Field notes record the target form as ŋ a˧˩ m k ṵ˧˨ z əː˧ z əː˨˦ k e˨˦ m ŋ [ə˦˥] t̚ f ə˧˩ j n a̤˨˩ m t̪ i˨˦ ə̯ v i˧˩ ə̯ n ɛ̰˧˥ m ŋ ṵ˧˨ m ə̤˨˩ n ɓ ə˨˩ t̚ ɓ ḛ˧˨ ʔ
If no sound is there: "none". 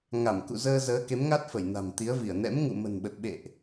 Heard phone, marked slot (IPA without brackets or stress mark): a˦˥